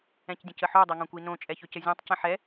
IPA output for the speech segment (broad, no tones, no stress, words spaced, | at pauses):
ɛ̃cdʲə̃cəħo dˤɛŋõkʷinõ t͡ʃʼɛçɵcəzʲãtˤ cə̃ħɛ